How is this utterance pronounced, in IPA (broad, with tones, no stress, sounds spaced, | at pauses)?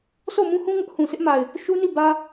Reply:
sʰ o˦˨ ʊ̯ m ũ˦ h ũ˦ ŋ ʊ˦ ʔ h ũ˨ s ɪ˦ ʔ m a˨ ɪ̯ | ʃ u˦ n i˦˨ b ä˦